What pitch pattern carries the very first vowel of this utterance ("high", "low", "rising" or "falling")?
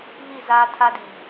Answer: falling